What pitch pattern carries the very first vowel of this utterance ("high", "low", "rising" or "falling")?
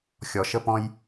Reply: low